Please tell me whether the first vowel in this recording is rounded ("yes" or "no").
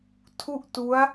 yes